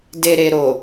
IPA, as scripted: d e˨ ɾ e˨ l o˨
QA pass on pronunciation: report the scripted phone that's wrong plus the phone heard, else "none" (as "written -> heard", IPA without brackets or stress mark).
l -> ɾ